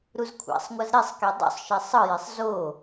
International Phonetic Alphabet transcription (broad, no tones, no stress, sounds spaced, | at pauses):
ɾ u z kʷʰ a̰ sˤ ŋʷ ʌ z ɾ i sˤ k e dˤ o̰ sˤ ʃ ɛ sˤ ɯ j e sˤ z o